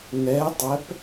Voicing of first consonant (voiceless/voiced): voiced